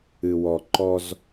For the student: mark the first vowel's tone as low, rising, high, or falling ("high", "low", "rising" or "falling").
low